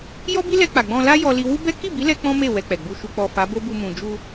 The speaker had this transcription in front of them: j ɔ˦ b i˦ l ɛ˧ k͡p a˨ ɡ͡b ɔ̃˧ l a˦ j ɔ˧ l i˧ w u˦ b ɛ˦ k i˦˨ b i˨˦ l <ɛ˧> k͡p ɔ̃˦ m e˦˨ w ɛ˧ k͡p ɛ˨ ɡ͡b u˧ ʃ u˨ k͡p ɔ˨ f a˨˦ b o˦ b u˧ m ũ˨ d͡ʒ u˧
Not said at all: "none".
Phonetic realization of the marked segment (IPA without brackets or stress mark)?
ɛ˧